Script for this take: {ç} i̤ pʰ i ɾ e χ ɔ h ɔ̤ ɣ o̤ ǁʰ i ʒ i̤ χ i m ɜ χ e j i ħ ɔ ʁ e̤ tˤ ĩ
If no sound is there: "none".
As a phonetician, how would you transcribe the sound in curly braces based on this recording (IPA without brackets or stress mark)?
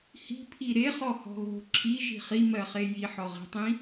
h